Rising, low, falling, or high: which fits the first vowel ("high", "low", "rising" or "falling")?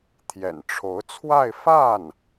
low